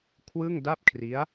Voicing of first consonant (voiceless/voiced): voiceless